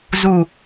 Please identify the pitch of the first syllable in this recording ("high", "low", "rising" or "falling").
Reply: low